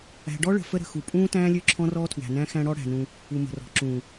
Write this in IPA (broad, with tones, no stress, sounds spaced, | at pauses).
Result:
æ̤˨ ɖ ɔ˦ ɭ ə̤˨ f ə˦ ɾ ə̤˨ x u˨ pʼ ũː˦ t æ̃ː˦ lʲ ø˦ ǁʰ ɔ̃˦ r ɔː˦ tʰ w æ̤˨ n æ̃˦ x æ̃˦ ɽ ɔ˦ ɽ æ̤˨ n ũ˦ | u˨ m ə̤˨ r ɔ̤˨ ǁ ũː˨